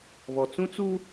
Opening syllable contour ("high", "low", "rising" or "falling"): low